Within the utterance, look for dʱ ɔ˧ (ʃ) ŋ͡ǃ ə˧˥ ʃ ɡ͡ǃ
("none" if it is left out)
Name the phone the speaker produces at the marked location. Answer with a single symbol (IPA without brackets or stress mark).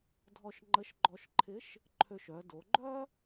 ʃ